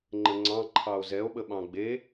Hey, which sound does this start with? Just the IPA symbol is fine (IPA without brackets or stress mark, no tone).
ŋ͡ǃ